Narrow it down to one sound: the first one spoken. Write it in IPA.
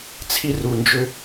t͡sʰ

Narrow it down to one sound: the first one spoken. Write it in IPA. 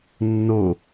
nː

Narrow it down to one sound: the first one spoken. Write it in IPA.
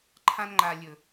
ǃʰ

